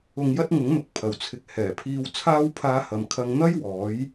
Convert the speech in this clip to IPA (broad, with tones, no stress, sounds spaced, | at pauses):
ʊ˧ ŋ j ɐ˥ t̚ ŋ ʊ˨˥ ŋ n̪ ʊ˨ k̚ pʰ ɐ˨ w t͡sʰ ɪ˧ k̚ h ɛː˨˩ pʰ iː˧ w t͡sʰ aː˥ w pʰ aː˧ h ɐ˨ m kʰ ɐ˧ ŋ n̪ ɐ˥ j w ɔː˨˧ j